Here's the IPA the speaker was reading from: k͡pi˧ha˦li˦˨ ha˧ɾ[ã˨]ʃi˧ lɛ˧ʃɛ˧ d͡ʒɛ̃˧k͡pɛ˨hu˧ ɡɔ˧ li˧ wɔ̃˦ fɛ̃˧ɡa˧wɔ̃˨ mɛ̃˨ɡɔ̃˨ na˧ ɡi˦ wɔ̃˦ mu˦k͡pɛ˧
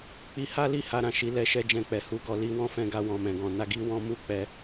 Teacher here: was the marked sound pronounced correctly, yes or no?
yes